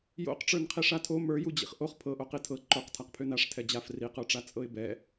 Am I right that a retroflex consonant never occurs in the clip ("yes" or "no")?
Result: no